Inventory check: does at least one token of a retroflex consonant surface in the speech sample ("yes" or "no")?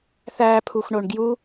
yes